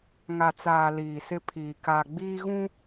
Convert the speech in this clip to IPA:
ŋ a˨ t͡s aː˨ l iː˨ s ɪ˦ pʰ iː˨ k a˨ ɡ͡b iː˦ ɣ ũ˦

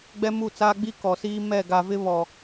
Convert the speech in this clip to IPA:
ɡ͡b ɛ˦ m u˦˨ t͡s aː˦ ɡ͡b i˦ k ɔ˨ s iː˦ m ɛ˦˨ ɡ a˨ v ɪ˦ β ɔ˨

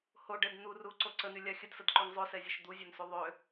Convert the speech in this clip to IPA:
h o ɖ ɛ d n̪ u r u ǀ o ǀ ə n y lʲ a xʲ ə d s ə d ǃ y ŋ zˤ ø s ɛ zʲ o ʃ d̪ u zʲ ø n s u ðˤ ø

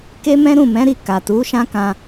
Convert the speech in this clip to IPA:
k e˦ m ɛ̃˦ ɾ ũ˦˨ m ɛ̃˨˦ ɾ i˦˨ k a˨ t u˨˦ ʃ ã˦ k ã˧

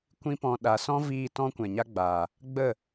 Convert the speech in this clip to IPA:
kʷ ĩ˦ p ɔ̃˧ ɗ a˨ s ɔ̃˦ v iː˧ t ɔ̃˦ kʷ ɛ̃˨ ɲ a˦ ɡ͡b aː˨ | ɡ͡b ə˦˨

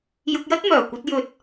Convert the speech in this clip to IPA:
j ʊ˧ k̚ j ɐ˥ t̚ m œː˨˩ kʷ ɐ˧ t̚ j ɵ˨ t̚

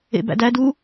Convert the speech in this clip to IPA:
ḛ b æ̰ d æ d u

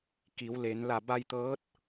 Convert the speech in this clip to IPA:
k i˩˧ w l e˩˧ n l a˧˩ b a˧ j t̪ ɤː˧˥ t̚

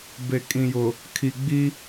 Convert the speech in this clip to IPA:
b e˨ kʼ ĩ˨ j ʊ˨ | kʰ i˨ ɡ͡b i˦

